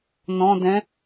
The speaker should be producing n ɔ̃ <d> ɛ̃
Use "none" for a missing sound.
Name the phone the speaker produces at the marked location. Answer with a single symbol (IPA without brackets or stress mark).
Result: d